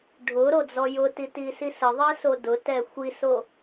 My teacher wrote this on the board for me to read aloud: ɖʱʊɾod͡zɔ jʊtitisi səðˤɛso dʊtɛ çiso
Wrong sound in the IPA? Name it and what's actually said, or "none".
ç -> xʷ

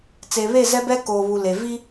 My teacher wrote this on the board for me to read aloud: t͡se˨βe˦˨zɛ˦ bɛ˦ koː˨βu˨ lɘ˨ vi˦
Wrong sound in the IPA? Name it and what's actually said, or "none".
ɘ˨ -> e˨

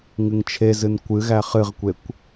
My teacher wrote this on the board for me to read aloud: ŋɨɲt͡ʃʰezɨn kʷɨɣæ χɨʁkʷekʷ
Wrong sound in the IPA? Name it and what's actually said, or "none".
ɲ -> ŋ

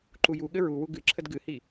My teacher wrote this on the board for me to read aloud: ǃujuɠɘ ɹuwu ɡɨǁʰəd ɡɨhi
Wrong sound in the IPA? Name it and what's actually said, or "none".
none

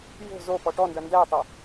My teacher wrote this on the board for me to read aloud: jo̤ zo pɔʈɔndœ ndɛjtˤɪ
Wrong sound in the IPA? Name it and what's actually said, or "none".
none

